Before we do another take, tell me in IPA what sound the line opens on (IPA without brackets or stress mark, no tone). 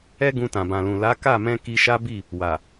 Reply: ɛ